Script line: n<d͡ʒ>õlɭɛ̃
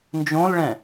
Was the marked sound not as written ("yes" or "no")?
no